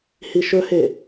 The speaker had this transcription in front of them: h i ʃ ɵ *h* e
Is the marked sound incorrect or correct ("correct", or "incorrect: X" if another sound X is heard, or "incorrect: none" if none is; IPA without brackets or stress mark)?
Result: correct